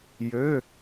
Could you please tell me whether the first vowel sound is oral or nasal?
oral